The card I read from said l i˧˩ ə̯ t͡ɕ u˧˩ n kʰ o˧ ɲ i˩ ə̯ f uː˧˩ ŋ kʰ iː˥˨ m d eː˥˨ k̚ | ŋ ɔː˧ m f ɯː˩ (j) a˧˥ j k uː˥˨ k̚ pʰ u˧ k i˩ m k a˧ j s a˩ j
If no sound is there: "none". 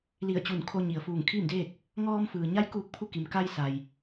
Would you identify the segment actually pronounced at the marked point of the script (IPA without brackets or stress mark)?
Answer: ɲ